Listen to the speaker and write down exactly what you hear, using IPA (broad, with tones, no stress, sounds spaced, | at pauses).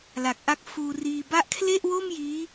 l a˨˩ k̚ ʔ a˦˥ k̚ f uː˧ r iː˧ b a˦˥ ʔ kʰ l e˥˩ ʔ w oː˥˩ m j iː˦˥